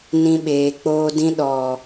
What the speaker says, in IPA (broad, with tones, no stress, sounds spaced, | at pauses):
n ĩ˧ ɓ eː˨ k͡p oː˧ d ĩ˧ ɗ ɔ˨